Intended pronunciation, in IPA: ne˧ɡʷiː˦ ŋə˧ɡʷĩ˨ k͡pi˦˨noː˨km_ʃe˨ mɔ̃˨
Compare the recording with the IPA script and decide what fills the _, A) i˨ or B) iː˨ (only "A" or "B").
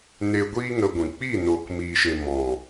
B